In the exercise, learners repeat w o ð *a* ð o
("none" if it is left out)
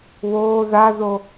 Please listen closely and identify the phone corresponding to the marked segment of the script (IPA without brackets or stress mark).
a